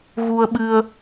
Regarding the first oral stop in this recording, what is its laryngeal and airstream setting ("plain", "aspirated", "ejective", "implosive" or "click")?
implosive